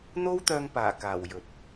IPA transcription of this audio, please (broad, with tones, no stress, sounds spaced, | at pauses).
n̪ o˥ w t̪ œː˧ ŋ p aː˨˩ k aː˨˩ w j ɵ˨ t̚